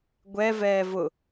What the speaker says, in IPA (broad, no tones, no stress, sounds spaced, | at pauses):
ɡʷ ɛ v ɛː v ʊ